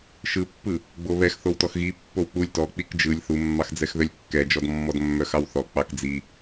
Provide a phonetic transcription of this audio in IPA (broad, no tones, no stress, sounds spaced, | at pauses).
ʃ ɯ pː ɯ | ɡ͡b o β ɛ x θ o w t ɔ x ɣ i pː o w k͡p u lʲ t ɔ k͡p i k d͡ʒ ɯ lʲ θ u mː ɑ x d͡z ɛ x ð œ lʲ kː ɛ d͡ʒ ɔ d mː ɔ d mː œ x ɑ w θ ɔ k͡p ɑ k d͡z i